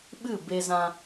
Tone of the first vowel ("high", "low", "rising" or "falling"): falling